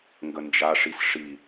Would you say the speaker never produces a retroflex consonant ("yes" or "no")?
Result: no